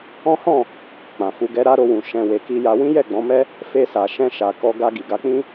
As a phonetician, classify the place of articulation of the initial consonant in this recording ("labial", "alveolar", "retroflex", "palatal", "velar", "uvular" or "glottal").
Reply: glottal